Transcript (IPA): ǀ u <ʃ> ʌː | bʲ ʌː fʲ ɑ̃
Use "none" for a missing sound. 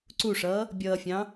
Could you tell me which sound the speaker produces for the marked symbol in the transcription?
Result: ʂ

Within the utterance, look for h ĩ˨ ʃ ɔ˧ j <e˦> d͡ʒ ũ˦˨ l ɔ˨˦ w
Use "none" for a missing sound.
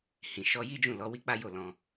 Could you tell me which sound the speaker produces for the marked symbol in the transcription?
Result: i˦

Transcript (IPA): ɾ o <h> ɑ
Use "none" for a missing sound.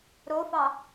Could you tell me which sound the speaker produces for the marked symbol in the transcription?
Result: f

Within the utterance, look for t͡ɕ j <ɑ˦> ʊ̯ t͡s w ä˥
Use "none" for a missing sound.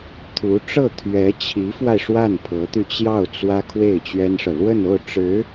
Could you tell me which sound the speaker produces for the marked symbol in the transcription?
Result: ɑ˥˩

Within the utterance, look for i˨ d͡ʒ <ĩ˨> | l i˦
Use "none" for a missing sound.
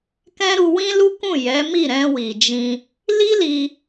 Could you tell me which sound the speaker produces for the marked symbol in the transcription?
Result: ĩ˧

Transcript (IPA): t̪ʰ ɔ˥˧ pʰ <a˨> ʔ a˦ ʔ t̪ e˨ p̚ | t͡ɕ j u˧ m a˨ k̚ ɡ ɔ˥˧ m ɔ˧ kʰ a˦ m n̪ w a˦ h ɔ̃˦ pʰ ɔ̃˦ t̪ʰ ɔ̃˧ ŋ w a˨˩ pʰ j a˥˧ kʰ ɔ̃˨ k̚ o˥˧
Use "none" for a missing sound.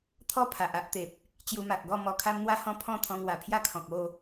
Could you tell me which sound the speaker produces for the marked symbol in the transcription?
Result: a˨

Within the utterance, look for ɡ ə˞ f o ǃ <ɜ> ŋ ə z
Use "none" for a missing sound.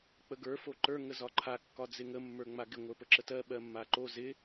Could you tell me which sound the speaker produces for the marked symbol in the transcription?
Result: ə˞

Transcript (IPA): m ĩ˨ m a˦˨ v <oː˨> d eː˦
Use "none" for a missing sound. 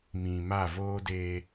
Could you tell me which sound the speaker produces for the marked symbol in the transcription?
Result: oː˦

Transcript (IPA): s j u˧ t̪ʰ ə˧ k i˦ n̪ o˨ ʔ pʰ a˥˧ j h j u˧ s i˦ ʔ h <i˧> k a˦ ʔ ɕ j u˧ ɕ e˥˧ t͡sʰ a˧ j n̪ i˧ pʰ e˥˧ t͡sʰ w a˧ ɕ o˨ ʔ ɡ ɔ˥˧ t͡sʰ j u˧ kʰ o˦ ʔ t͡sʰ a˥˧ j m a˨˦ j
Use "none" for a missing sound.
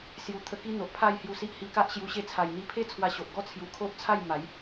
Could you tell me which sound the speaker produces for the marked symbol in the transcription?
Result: i˧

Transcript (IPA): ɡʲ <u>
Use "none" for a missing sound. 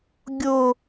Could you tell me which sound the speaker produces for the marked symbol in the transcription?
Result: o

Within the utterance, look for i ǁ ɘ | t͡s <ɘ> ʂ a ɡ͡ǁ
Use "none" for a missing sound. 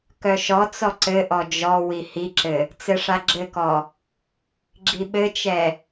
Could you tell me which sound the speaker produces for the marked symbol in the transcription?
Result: ɘ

